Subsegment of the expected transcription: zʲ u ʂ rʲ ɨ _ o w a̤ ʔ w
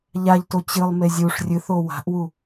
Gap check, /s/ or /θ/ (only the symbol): θ